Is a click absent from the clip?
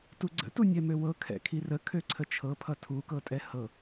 no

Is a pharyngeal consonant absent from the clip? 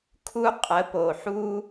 no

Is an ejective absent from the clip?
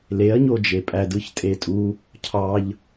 no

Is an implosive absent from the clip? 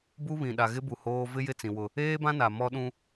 no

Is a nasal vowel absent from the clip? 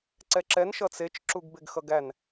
yes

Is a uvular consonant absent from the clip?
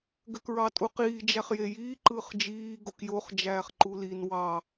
no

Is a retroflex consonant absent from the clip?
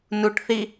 no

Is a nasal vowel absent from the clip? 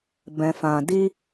no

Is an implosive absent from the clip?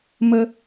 yes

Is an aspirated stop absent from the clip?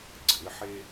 yes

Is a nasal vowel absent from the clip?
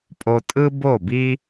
yes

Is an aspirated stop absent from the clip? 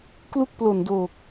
yes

